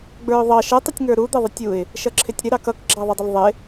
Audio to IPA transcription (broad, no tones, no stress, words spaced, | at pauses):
ɡ͡bə˞ʊ̯ðˤɑ ʃə tˤɪtʲŋə˞ɾu d̪ɛðˤɪtʲuɪ̯ | ʃʌǁʰɪtʲɾɪ ɾɑkʌk ɡ͡ǁɑðˤɛdˤəlðˤɪ